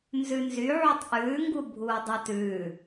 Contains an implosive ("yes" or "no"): no